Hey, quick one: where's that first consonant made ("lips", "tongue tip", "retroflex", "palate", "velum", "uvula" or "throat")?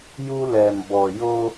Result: palate